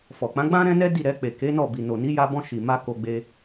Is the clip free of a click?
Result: yes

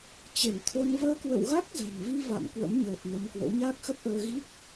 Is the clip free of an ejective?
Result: yes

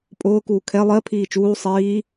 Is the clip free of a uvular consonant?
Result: yes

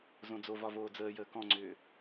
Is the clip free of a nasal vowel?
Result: no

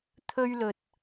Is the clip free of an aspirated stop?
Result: no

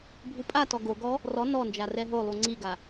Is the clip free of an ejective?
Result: no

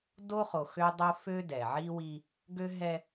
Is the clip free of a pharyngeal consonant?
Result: no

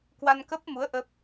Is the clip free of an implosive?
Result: yes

